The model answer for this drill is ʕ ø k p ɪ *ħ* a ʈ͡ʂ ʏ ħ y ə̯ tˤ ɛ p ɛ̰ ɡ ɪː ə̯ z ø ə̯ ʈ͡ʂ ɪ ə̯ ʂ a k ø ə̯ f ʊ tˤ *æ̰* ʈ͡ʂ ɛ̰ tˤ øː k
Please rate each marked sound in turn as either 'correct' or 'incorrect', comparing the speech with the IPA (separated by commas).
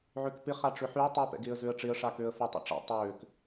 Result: incorrect, incorrect